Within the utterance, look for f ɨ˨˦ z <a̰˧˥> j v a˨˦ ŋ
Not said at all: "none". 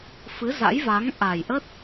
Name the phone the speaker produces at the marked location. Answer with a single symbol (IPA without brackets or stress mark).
a̰˧˥